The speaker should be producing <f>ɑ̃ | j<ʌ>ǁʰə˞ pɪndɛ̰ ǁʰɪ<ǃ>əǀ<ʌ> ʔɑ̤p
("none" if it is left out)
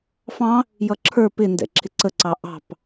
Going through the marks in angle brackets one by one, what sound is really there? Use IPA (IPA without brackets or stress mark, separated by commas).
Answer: f, ʌ, ǀ, ɑ